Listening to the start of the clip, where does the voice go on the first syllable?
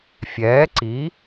rising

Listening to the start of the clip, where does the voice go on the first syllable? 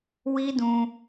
high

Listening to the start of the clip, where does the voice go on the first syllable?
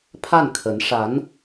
falling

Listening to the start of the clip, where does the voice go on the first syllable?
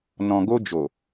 low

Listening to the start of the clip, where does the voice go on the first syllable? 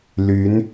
rising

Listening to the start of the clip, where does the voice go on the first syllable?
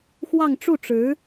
falling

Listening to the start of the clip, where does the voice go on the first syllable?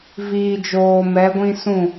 low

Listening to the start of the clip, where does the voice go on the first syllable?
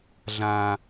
low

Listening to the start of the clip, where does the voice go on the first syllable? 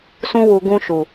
high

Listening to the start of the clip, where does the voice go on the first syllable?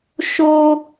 high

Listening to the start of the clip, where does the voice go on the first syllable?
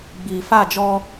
low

